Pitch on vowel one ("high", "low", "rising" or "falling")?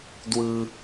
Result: high